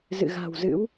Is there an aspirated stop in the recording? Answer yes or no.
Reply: no